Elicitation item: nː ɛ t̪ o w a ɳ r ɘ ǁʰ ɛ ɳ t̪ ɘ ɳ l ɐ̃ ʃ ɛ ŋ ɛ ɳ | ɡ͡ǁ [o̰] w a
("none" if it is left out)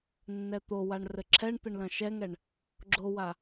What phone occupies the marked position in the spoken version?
o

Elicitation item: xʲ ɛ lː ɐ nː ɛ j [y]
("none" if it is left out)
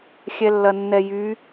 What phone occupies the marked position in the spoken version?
y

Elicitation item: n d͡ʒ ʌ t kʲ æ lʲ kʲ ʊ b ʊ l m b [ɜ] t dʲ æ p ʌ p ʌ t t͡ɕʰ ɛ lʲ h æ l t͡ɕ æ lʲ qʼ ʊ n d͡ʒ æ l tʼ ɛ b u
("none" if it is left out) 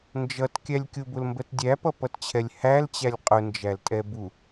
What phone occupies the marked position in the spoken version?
ɜ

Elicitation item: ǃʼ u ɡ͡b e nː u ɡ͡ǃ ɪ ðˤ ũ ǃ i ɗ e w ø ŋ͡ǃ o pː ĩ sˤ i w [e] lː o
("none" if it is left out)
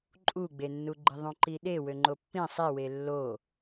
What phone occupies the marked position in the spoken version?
e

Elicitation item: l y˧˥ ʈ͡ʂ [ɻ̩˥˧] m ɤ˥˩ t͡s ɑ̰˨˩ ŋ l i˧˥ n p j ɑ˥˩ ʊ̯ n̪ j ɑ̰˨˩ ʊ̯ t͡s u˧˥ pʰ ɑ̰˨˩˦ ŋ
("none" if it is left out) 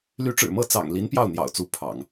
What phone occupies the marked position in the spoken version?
ɻ̩˨˩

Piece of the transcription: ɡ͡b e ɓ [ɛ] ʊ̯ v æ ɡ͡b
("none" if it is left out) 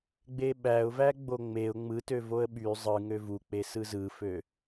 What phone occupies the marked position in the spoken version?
æ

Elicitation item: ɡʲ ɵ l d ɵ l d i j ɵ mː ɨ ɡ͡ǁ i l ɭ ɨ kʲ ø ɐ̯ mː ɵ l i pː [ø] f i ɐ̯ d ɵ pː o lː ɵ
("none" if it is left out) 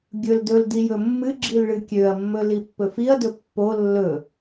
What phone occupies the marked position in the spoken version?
ɵ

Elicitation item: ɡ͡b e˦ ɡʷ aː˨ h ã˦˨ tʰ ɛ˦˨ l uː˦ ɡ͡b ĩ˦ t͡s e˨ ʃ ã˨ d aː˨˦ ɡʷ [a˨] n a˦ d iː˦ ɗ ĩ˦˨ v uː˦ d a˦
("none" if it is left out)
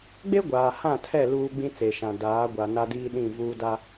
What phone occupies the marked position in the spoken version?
a˨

